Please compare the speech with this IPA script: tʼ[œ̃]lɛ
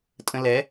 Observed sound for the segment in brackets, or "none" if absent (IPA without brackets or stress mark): ə̃